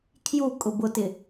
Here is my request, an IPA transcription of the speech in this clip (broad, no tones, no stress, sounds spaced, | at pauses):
kʰ j u kʼ ʊ b ʊ t ɪ